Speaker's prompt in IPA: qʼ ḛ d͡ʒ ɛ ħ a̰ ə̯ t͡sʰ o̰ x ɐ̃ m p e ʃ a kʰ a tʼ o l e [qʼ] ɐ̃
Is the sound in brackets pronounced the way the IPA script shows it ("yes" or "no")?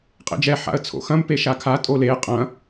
yes